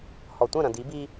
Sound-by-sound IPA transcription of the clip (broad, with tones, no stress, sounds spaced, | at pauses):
h ɔ˨ tʷ ɐ̃˦˨ ɾ ɐ̃˨ d i˨˦ b i˦